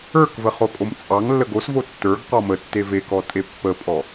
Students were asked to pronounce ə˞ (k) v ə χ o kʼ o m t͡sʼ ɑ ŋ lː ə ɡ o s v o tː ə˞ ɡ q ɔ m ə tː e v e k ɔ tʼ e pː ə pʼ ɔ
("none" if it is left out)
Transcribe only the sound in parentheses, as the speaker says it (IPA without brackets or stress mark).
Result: k